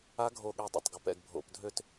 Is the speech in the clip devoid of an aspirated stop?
yes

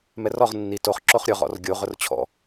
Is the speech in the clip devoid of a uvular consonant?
no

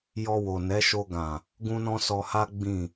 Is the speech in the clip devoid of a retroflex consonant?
yes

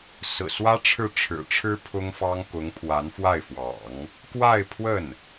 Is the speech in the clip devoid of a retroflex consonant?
no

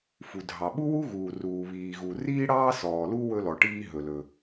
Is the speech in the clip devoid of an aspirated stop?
yes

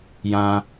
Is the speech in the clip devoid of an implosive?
yes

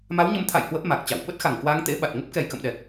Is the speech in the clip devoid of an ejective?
yes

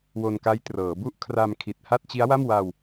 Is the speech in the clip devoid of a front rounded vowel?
yes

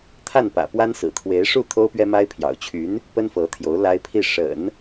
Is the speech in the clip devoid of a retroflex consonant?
no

